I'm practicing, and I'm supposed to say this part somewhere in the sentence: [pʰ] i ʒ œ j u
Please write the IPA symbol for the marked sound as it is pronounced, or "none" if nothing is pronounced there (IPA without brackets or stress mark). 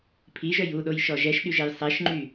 pʰ